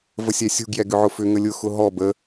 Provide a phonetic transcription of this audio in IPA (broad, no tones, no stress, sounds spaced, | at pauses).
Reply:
v ə sʲ ɛ sʲ ṳ ɡ j ɛ ɡ ʏ ʕ ʊ f ʏ ŋ ə lʲ ʊ x ʊ ɦ ɔ b ə